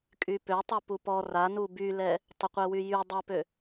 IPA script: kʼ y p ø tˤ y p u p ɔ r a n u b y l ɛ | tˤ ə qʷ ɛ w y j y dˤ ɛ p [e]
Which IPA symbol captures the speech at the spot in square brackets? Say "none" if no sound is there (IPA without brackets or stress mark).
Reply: ø